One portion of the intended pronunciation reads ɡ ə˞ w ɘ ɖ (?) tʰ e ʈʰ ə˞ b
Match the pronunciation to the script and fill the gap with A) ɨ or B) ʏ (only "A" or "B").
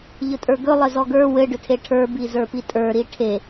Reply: B